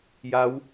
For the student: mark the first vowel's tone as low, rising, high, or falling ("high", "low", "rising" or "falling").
rising